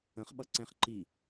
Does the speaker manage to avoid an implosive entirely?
no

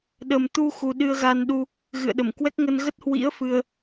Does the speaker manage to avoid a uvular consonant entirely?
yes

